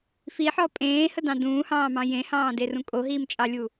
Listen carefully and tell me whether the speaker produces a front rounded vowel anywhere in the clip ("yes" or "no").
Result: no